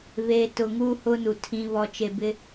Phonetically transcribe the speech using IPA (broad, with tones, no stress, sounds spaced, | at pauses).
β eː˨ t ʊ˨ ŋ uː˦ h ʊ˦ n u˨ tʰ ĩ˨ β ɔ˨ t͡ʃ e˨ b ɪ˦